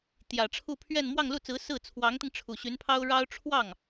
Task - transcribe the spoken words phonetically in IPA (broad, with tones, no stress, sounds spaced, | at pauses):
t̪ j ä˨˩ ʈ͡ʂʰ u˥˧ pʰ ɥ ɛ˥˧ n m w ɑ˥˧ ŋ l u˥˩ t͡s ɹ̩˧˥ s ɹ̩˥˩ t͡sʰ w ɑ˧˥ ŋ t̪ i˧ ŋ ʈ͡ʂʰ u˨˩ ɕ y˧˥ n pʰ ɑ˥ ʊ̯ ɻ ɑ˥ ʊ̯ ʈ͡ʂʰ w ɑ˥˩ ŋ